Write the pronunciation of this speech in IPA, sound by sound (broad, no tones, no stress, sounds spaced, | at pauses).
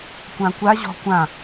kʷ ã kʷ a ʑ ɔ̤ kʷ ã